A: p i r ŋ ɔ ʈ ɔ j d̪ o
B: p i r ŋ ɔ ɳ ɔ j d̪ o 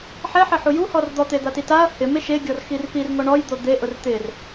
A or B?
B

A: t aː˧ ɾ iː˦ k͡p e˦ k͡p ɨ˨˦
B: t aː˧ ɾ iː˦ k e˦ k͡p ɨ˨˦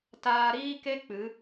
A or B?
B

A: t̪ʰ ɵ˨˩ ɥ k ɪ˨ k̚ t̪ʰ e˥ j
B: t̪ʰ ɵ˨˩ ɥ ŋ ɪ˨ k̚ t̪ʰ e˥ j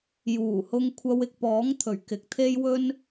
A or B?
A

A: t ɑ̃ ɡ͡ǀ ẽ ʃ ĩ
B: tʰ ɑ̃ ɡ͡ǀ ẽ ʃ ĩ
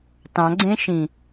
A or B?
A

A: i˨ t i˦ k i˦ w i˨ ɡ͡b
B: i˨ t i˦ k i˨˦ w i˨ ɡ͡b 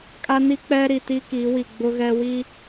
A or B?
B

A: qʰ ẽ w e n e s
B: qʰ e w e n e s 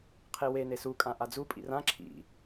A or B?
B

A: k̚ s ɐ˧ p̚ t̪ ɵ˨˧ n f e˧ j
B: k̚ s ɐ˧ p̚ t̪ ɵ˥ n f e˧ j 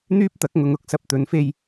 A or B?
A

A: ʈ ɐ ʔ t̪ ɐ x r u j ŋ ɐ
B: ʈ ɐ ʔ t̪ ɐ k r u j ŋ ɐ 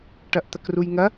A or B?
B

